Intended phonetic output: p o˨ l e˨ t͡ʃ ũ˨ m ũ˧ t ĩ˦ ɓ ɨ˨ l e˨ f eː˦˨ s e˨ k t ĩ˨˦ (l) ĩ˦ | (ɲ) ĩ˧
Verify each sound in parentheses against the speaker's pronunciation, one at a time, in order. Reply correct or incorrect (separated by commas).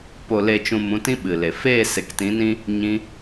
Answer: incorrect, correct